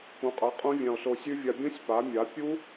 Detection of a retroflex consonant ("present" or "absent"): absent